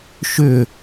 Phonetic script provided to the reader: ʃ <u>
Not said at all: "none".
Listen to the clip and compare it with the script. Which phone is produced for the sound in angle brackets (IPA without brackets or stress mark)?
ʏ